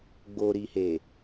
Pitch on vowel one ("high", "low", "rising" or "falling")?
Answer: low